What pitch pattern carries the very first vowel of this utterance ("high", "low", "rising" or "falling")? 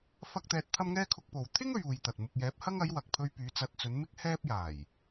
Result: high